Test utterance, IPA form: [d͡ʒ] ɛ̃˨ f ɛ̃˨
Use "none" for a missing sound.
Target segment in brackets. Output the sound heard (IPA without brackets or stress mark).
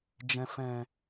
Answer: d͡ʒ